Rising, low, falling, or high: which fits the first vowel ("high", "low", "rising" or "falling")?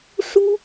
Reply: high